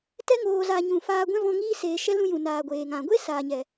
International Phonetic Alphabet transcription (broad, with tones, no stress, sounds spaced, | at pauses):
t ɛ˧ ŋ oː˨ z a˨ ɲ ũ˨ f aː˧ ɡʷ ɛ̃˦ v ɔ̃˧ ŋ iː˧ s eː˨ ʃ ɛ˦ l ũ˦˨ j ũ˨ n aː˨ ɡʷ eː˨ ŋ ã˨ ɡʷ e˦ s aː˨ ɲ ɛ˨